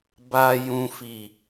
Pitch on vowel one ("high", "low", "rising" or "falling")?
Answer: low